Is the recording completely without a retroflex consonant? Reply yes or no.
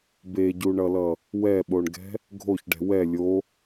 no